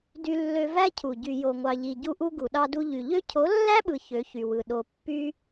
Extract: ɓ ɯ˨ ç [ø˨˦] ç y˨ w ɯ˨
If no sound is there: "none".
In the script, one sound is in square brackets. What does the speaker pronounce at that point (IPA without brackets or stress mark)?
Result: ø˨˦